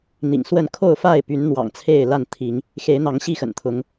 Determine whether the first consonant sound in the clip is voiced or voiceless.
voiced